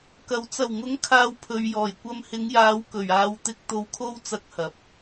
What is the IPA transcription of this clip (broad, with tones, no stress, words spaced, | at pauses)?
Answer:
kɐ˨˩w t͡sɐ˨˩wŋʊ˨˥ŋ kʰaː˧wpʰɵ˨ɥjɔː˨˩jkʷɐ˧m hɪ˨˧ŋjaː˨˧w kɵ˨˩ɥaː˨˧w t̪ɪ˨k̚t̪o˨wkʰo˧wt͡sɐ˨˥k̚ hɐ˨˥p̚